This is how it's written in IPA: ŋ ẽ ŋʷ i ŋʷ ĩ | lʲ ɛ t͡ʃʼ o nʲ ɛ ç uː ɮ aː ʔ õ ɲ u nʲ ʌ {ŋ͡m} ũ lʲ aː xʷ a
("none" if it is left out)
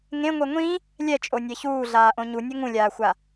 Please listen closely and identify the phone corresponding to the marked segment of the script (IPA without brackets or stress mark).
ŋ